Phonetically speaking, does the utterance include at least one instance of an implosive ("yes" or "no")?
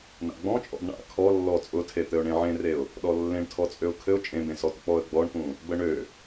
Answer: yes